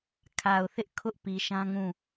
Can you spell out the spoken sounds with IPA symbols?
kʰ a˨ ʊ̯ θ ɪ˦ ʔ kʰ ʊ˦ ʔ p i˨ ʃ ã˦ ŋ ũ˦˨

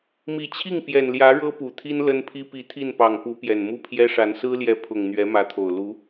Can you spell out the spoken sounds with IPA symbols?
m i˨˩ t͡ɕʰ i˥˩ ŋ p j ɛ˨˩ n l j ä˧˥ ɻ ɤ˥ p u˨˩ t̪ʰ i˥ n l ə˥ n pʰ i˥ p i˧˥ t̪ʰ i˥˩ n p ɑ˨˩ ŋ p u˧˥ p j ɛ˨˩ n m u˥˩ pʰ j ɛ˥ ʂ a˧˥ n s ɹ̩˥ l j ɛ˧˥ pʰ ʊ˨˩ ŋ n̪ ɥ ɛ˧˥ m ä˧˥ t̪ʰ o˨˩ ʊ̯ l u˧˥

